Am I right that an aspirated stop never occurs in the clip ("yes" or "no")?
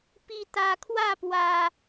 no